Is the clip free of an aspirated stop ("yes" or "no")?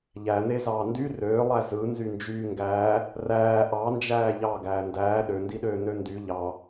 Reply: yes